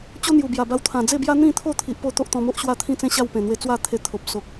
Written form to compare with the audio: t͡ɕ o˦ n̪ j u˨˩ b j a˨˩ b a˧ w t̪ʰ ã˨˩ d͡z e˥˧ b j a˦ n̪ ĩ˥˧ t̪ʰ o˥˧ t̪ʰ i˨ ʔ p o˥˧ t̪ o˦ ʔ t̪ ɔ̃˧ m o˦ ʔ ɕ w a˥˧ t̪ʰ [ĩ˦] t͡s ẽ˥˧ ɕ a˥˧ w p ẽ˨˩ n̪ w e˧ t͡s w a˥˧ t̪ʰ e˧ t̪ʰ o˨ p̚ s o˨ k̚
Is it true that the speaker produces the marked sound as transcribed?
no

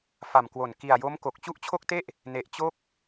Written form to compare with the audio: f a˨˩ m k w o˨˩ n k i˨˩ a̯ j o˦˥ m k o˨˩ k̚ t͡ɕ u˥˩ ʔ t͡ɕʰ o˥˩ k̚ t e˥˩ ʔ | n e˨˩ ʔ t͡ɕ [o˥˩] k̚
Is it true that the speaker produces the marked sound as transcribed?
yes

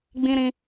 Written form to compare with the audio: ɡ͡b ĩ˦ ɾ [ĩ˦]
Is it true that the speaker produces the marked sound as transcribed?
yes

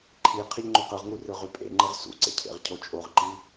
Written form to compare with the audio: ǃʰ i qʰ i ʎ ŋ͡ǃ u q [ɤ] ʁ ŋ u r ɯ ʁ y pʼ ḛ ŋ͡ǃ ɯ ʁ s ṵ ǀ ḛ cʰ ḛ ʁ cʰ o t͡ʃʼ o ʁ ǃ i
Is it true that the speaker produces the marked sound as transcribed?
no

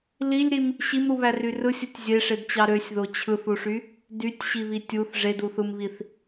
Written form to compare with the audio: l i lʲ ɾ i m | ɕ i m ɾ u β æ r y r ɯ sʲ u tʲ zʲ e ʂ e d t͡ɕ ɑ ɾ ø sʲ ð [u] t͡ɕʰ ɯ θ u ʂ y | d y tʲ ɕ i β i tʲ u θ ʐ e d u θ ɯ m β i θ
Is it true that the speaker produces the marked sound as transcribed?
no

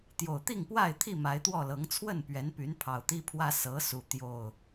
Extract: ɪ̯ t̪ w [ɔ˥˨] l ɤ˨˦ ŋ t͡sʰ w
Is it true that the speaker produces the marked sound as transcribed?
yes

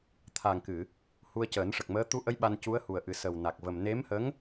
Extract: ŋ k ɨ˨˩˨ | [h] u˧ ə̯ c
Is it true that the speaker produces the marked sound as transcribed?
yes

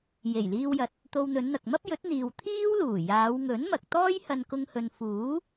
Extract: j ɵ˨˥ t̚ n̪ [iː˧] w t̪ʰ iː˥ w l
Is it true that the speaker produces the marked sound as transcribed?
no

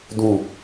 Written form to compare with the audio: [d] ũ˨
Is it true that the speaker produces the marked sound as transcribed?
yes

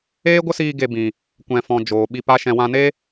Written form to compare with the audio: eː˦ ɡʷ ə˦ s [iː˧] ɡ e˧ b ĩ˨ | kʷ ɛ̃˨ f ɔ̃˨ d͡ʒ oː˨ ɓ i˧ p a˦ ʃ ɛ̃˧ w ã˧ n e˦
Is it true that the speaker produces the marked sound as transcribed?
yes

